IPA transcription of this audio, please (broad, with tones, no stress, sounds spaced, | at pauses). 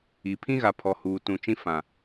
i˨ pʰ ĩ˦ ɣ a˨ pʰ ɔ˨ h uː˨ t ũ˨ t͡ʃ ĩ˦ f ã˨